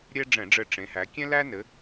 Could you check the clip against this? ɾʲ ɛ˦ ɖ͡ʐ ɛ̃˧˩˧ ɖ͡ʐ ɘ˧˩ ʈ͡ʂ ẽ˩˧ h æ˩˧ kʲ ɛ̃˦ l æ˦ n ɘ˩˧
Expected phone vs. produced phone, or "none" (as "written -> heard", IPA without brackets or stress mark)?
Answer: none